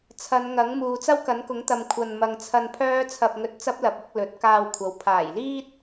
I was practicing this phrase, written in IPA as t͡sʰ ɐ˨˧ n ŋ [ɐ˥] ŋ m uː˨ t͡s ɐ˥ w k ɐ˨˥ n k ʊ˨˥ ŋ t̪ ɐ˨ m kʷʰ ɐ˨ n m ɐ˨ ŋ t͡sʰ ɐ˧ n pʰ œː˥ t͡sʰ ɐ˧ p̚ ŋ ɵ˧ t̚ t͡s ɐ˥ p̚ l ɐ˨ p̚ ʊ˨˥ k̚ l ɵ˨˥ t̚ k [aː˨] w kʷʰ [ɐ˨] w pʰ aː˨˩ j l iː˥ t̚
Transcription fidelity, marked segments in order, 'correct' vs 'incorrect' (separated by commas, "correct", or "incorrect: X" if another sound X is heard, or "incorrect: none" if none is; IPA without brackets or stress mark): incorrect: ɐ˨˥, incorrect: aː˧, incorrect: ɐ˨˥